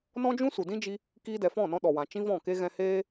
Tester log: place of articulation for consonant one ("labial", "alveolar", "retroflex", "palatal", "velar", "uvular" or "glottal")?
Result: alveolar